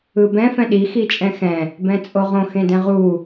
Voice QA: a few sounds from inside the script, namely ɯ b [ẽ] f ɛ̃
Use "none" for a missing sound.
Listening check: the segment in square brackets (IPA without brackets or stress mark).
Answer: ɛ̃